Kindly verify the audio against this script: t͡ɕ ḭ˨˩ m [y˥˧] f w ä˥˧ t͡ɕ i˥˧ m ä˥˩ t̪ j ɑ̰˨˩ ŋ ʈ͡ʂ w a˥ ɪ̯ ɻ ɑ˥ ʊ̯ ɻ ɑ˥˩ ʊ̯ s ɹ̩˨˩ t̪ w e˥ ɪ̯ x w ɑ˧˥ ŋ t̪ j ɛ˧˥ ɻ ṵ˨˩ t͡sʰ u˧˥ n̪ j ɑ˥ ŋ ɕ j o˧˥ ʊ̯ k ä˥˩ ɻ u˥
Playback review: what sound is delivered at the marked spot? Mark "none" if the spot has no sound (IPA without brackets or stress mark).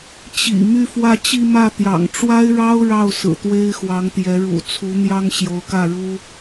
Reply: y˥˧